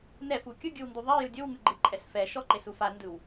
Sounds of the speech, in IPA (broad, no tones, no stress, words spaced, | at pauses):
nɛfu kʲɯɡʲɯwndu ðˤejɯ dʲowŋɯɡ͡ǃɯǃʼɛs fɛʃɔǃesu fandɯw